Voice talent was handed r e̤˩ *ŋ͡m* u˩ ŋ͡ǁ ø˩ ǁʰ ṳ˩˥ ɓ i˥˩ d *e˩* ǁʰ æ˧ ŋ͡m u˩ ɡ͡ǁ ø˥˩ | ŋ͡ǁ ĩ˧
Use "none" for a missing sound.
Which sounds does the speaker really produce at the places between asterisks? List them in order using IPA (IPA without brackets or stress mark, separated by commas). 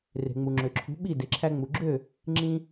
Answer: ŋ͡m, e˩